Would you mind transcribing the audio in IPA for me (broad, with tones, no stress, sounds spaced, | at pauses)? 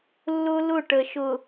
lː ʊ˦ l ʊ˦˨ ʈ ə˨ ʃ ʊ˨